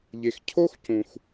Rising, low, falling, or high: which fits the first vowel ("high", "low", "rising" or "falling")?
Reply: low